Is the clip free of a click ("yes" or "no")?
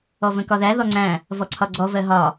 no